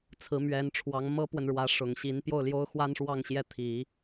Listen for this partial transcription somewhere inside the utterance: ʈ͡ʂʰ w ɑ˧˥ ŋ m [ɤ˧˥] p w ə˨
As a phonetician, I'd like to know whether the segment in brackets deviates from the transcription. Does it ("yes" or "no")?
yes